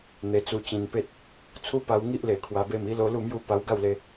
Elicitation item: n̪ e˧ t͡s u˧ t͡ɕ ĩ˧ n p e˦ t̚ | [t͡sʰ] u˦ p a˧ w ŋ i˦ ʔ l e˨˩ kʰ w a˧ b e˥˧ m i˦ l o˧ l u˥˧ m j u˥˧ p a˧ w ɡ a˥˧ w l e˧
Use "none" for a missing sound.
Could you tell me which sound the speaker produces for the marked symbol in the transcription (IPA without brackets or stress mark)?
t͡sʰ